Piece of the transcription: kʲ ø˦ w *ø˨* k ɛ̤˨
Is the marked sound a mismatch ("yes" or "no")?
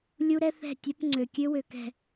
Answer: no